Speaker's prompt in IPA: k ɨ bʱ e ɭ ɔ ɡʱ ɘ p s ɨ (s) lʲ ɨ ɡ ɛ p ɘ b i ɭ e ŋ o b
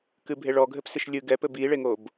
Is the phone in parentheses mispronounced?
yes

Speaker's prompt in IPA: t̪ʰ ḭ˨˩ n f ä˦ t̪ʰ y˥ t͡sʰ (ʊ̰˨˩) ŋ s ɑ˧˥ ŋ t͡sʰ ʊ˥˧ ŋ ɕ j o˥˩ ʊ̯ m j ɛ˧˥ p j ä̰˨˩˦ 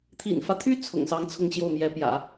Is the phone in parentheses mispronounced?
no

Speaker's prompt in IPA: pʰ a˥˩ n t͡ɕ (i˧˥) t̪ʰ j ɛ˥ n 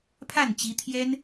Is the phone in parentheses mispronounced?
no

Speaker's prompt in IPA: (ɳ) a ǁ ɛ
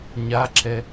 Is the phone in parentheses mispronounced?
yes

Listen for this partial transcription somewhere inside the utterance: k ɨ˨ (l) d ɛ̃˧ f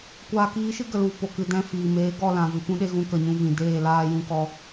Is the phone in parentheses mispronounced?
yes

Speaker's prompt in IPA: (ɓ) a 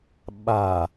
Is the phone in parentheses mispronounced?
no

